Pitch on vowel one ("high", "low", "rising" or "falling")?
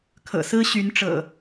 low